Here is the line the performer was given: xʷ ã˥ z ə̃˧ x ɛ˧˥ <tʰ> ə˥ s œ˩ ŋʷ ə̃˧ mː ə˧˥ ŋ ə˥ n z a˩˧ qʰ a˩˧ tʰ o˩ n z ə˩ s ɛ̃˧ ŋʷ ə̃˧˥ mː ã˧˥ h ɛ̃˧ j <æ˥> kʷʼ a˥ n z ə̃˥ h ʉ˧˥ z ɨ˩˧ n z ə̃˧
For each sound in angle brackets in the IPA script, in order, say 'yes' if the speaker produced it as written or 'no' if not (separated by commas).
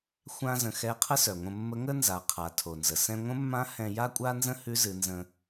no, no